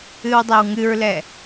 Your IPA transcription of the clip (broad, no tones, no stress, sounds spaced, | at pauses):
ɨ w dˤ ɛ w ŋ ɨ ɹ l ɛ